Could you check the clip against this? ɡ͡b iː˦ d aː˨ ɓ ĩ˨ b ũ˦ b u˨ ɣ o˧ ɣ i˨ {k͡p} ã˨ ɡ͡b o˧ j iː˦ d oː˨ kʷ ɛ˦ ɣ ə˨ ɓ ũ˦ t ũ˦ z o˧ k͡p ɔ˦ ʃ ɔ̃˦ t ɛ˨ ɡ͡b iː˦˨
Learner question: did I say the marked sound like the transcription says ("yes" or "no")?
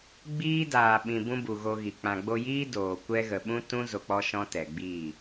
yes